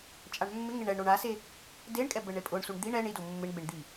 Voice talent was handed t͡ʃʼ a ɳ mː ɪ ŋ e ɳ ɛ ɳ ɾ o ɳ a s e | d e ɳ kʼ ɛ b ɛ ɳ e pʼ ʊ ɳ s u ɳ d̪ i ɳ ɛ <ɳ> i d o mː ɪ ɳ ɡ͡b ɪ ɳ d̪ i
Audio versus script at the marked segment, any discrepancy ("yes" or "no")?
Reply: no